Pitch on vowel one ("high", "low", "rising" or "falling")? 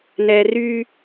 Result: low